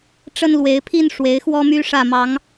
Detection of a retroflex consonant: present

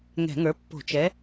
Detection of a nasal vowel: absent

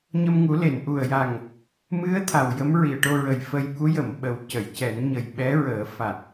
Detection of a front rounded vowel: absent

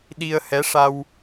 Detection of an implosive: present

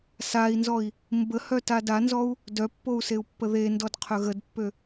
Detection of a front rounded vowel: present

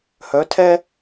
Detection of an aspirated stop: present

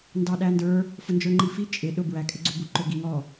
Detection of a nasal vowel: absent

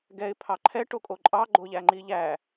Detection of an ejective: present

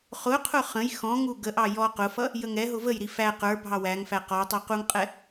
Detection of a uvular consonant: present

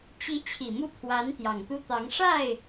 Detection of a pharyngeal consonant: absent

